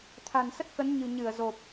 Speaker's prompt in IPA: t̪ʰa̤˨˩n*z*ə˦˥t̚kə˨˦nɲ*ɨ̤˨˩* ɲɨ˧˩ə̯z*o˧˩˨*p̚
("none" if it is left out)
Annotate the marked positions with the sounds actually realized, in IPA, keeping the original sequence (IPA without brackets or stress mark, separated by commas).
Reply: s, ɨ̤˨˩, o˨˩